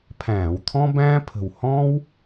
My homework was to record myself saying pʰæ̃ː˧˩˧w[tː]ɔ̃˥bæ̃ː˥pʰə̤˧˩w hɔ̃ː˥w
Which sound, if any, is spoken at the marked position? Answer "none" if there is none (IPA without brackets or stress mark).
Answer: t̪ʰ